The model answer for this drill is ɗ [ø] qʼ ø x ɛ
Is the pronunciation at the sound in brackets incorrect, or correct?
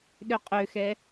correct